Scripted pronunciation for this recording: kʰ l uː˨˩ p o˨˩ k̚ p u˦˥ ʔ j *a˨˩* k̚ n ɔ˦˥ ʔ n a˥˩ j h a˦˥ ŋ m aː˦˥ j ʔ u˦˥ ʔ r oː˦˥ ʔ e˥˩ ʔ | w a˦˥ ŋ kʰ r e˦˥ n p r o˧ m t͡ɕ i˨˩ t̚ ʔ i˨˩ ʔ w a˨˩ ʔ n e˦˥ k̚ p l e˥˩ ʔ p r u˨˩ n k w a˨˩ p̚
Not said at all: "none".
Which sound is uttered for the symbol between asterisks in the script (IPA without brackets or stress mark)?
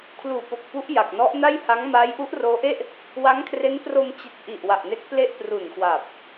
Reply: a˨˩